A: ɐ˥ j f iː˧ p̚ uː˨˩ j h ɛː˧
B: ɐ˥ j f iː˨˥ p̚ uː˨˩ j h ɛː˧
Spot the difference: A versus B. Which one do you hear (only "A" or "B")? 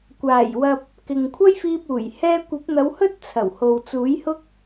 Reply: A